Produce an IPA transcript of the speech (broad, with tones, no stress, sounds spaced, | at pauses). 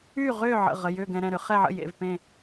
y˥˨ ʁ ʏː˥˨ ʕ ə̰˩˧˩ ʁ ə˩˧˩ j ʏː˥˨ ɡ ɛ̃˧ ɾ ɛ̃˩˧˩ ɾ ʏ˧ χ ɛ˥˨ ʕ ə̰˥˨ j ḛ˩˧˩ v p ẽ˥˨